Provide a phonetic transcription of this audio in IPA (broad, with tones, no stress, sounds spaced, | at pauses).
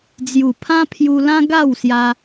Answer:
d͡z j u˨˩ pʰ ã˦ pʰ j u˧ l ã˦ ɡ a˥˧ w s j a˧